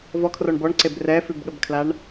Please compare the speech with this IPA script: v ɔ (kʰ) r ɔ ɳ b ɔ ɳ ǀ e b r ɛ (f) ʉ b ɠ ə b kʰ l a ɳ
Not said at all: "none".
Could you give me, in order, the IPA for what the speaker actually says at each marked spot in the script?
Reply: kʰ, f

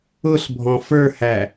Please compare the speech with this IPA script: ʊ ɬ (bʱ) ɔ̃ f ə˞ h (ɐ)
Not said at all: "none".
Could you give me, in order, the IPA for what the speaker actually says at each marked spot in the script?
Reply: bʱ, æ

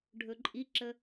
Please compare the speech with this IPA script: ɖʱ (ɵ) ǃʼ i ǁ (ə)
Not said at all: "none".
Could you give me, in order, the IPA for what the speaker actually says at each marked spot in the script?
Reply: ɵ, ə

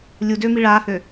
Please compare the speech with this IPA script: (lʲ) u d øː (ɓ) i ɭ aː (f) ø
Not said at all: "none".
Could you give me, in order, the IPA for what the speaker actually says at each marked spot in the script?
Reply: lʲ, m, h

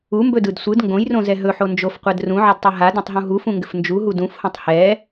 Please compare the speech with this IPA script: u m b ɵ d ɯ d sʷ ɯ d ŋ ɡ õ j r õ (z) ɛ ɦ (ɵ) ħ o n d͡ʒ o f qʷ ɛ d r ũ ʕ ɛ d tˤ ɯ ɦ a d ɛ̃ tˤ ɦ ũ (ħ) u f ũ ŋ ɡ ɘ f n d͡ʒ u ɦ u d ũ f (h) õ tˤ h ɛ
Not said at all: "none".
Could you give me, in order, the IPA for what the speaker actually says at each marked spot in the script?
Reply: z, ɵ, ɦ, h

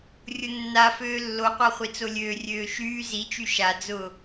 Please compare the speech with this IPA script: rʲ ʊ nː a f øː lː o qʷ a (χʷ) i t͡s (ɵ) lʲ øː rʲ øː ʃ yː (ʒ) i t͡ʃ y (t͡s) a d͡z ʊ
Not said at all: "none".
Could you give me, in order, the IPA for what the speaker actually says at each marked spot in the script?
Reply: χʷ, o, z, ʃ

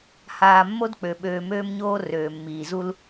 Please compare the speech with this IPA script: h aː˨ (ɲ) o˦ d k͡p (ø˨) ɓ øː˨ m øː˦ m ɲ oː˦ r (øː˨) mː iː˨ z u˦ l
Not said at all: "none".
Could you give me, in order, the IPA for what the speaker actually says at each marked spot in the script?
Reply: mː, ø˨, øː˨

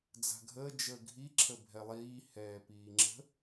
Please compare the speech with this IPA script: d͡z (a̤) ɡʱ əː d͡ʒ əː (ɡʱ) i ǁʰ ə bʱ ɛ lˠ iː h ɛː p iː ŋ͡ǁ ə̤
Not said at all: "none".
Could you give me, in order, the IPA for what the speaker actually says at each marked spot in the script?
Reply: a̤, ɡʱ

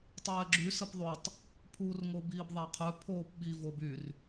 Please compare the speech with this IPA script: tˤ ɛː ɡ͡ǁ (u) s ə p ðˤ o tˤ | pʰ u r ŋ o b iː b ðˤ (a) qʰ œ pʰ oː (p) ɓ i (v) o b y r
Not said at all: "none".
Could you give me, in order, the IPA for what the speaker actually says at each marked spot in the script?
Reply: y, a, p, v

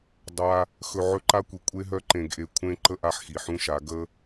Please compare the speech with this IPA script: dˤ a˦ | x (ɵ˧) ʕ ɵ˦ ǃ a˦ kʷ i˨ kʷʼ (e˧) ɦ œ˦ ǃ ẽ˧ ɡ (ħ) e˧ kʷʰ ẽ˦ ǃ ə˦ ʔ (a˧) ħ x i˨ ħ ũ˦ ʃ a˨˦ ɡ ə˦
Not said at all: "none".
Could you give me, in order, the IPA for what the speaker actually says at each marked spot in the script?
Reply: ɵ˧, e˦, ʔ, a˧

